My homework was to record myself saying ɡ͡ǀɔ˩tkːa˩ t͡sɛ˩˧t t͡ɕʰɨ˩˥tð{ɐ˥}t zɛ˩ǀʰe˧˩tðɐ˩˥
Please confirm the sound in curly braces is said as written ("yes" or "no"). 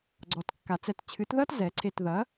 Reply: yes